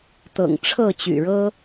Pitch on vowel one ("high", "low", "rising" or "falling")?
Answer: low